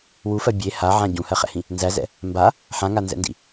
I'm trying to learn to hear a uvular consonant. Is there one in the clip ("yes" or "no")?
yes